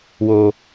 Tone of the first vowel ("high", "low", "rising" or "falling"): low